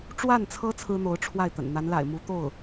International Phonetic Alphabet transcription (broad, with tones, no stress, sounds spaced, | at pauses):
ʈ͡ʂ w a˥˩ n t͡sʰ ɤ˥ t͡sʰ ɹ̩˥ n̪ o˧˥ ʊ̯ ʈ͡ʂʰ w a˥˩ ɪ̯ t̪ ə̰˨˩ n n̪ a˧˥ n l a̰˨˩ ɪ̯ m u˧˥ t̪ o˥˩ ʊ̯